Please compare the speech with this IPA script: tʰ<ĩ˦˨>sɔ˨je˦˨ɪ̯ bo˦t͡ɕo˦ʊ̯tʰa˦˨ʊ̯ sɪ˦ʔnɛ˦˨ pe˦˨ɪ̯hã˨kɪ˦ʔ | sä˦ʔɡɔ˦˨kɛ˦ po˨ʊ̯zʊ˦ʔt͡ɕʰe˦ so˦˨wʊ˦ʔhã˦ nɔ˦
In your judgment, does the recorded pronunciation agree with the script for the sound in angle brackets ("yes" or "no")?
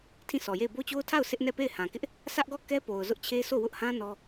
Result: yes